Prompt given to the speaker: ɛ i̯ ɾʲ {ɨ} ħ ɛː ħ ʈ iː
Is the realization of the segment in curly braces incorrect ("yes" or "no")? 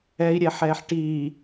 yes